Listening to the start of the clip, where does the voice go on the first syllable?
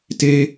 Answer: high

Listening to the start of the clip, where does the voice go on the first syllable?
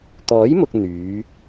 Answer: rising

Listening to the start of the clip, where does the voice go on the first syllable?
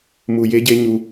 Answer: high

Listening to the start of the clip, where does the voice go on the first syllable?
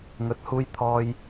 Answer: rising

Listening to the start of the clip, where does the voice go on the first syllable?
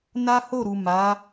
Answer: high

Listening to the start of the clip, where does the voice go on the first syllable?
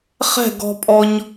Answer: falling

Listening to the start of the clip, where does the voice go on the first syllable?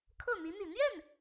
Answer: falling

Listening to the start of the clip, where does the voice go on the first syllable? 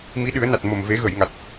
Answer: rising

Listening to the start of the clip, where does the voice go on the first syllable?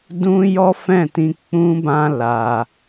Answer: high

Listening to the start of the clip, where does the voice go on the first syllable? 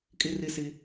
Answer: high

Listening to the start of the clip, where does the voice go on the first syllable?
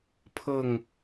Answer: falling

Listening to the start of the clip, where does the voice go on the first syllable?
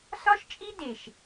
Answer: high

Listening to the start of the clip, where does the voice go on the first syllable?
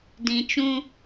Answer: low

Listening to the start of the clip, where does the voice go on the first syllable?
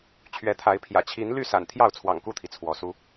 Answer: rising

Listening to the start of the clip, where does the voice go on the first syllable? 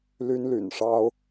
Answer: high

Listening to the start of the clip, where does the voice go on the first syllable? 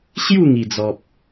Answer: falling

